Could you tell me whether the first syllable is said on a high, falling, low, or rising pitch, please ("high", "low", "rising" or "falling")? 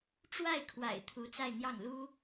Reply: falling